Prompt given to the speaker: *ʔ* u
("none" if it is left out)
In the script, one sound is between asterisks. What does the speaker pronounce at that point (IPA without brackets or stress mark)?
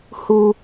h